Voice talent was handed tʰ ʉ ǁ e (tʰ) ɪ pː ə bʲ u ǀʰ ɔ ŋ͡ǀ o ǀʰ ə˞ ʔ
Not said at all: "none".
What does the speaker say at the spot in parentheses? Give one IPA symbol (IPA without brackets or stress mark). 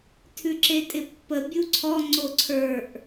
tʼ